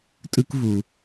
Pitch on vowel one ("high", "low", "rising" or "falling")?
high